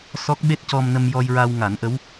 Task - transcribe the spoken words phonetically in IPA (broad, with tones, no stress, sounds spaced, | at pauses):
s ɔ˦˥ k̚ ɓ e˦˥ t̚ c ɔ˧ m n ə˧ m j ɔ˧ j ɹ a˧ w ŋ a˨˩˦ n ʔ ə˧˥ w